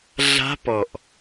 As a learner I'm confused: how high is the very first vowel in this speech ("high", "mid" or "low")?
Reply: low